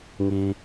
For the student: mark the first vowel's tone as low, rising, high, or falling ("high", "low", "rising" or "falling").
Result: high